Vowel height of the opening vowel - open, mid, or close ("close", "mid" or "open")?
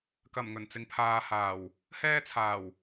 open